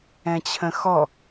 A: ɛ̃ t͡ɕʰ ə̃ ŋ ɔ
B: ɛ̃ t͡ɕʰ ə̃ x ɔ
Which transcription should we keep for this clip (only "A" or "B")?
B